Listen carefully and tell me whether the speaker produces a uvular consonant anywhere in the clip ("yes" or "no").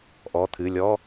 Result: no